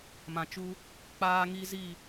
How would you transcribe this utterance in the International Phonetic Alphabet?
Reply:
m ã˨ t͡ʃ u˧ | k͡p aː˧ ŋ i˧ z i˦˨

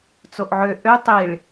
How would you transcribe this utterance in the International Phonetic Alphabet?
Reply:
t͡s o ʔ ʕ ø ʔ ø tˤ i ɭ

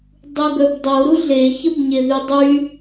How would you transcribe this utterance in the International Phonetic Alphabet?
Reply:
dˤ u ɡ œ b dˤ o ɾ u ɮ e ç ə b ɲ e ð y dˤ y

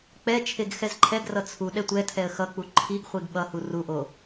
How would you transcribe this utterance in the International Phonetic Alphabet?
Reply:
k͡p ɛ t͡ʃʰ e ɡ x ɛ z ǃʰ ɛ ɡ r ʌ t͡sʰ u ɗ ɛ tʷ ɛ tʰ ɛ ə̯ x ʌ k͡p u ǃʰ i ɡ χʷ i ɡ ɓ ʌ h u r u ʔ o

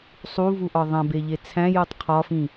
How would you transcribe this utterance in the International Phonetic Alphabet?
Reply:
sˤ u v u ʔ ɒ ðˤ æ̃ b e ʎ e t͡sʰ æ̃ j u tˤ qʰ ɒ f ĩ

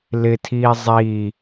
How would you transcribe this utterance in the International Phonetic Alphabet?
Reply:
l ɪ tʰ iː zˤ i

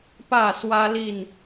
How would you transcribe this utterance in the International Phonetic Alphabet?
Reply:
p ä˥˨ s w ä˦ l i˥˨ n

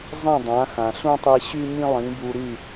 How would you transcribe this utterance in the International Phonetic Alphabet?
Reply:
zˤ ĩ˥˩ dˤ ã˩˥ x ã˩ ɬ ũ˥ tˤ i˧ ɕ y˥ ɲ ĩ˥ lˠ ĩ˩˥ b u˧ ɾ y˥˩

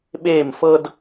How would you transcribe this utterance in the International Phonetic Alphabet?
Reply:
ɓ eː˦˨ m f ɤ˦ d

